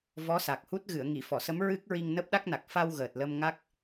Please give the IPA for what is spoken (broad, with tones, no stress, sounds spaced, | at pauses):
v ɔ˧˥ s a˨˩ k̚ h u˦˥ t̚ ɣ ɨ˨˩˨ ə̯ ŋ i˨˩˨ f ɔ˨˩˨ s ə˧˥ m ɹ ɨ˦˥ k̚ ɹ i˧ ŋ n əː˦˥ p̚ ɗ a˦˥ k̚ n a˨˩ k̚ f a˧ w ɣ əː˨˩ t̚ l ə˧ m ŋ a˦˥ k̚